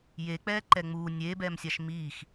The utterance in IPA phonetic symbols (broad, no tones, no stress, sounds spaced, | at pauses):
j e k͡p ɛː ǃ ɛ ŋ͡m uː nʲ eː b ɛː m sʲ a ʃ m iː x